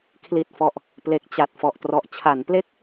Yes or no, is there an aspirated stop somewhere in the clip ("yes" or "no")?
yes